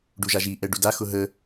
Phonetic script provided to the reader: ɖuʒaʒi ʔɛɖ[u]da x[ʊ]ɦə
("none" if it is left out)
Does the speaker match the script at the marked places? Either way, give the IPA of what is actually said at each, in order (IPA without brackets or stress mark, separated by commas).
u, ʊ